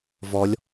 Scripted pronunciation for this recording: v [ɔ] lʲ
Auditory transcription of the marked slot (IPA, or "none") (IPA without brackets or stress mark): ɔ